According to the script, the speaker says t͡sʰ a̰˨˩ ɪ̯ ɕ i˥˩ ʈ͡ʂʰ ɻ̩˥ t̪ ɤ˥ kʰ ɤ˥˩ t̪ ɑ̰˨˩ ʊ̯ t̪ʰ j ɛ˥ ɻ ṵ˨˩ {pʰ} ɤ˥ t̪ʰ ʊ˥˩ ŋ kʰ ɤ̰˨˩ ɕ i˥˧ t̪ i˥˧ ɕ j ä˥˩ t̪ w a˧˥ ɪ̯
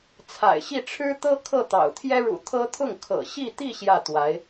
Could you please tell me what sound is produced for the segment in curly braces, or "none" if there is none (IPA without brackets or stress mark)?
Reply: t̪ʰ